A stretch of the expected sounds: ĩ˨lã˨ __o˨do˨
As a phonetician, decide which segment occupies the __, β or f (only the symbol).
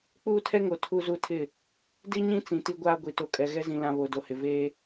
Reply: β